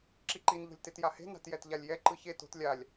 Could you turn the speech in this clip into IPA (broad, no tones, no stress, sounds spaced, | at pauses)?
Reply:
ǁ i ǃ i n ʎ o̤ lʲ t e t j a h e̤ n a̤ t j ɛ t ʎ a lʲ j ɛ ǃ ɯ ç e t o̤ t lʲ a lʲ